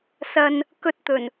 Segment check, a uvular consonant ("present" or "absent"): absent